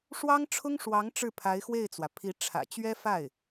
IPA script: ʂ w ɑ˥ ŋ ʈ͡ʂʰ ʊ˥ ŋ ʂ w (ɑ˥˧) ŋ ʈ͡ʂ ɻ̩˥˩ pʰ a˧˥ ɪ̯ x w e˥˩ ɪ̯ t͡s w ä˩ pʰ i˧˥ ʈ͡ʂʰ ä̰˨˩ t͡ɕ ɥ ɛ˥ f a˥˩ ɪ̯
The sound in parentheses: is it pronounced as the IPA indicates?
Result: no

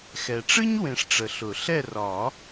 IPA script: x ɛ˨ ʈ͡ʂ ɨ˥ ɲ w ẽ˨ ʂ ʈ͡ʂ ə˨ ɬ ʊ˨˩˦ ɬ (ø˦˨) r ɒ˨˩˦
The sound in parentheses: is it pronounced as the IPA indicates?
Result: no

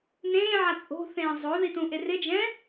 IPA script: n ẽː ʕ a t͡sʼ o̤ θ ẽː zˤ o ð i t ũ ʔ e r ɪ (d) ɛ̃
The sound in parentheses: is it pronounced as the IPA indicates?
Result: no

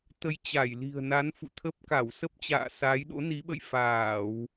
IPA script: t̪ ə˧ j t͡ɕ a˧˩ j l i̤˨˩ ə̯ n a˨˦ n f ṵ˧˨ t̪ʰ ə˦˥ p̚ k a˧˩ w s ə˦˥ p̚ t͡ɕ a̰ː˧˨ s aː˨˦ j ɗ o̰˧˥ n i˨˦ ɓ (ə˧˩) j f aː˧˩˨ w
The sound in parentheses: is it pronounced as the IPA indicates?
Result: no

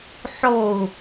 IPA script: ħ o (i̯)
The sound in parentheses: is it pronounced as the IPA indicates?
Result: no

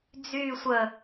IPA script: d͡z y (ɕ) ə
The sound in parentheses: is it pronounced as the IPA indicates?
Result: no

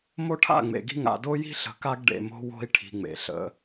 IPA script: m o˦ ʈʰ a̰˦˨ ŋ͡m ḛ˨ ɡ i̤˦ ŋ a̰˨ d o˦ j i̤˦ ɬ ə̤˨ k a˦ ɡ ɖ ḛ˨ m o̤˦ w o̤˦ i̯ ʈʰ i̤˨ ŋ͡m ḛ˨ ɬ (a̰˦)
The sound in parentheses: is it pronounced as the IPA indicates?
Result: no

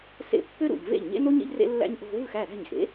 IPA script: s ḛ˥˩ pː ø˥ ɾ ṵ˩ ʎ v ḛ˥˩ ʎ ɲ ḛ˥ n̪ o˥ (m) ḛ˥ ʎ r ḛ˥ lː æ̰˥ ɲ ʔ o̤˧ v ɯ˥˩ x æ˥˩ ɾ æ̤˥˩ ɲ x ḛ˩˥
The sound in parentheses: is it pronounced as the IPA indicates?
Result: no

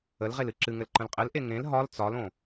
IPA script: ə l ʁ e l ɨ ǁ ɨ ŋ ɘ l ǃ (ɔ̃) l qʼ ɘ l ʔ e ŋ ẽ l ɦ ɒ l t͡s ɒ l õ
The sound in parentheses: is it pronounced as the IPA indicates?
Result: no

